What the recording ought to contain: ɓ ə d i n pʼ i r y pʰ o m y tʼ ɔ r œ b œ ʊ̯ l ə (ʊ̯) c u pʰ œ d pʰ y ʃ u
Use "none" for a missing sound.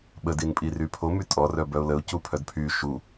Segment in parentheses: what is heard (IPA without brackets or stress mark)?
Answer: ʊ̯